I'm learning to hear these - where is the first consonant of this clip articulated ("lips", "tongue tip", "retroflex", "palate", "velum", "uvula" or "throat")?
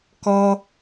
velum